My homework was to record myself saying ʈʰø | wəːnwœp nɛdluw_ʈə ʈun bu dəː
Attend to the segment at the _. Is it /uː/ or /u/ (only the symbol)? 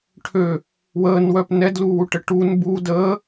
u